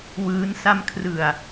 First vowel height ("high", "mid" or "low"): high